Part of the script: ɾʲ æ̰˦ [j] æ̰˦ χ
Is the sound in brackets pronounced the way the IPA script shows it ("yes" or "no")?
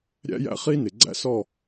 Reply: yes